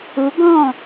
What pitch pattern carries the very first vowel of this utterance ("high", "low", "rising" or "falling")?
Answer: rising